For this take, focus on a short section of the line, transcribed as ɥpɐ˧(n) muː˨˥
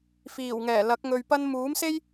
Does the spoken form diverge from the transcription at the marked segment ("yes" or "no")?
no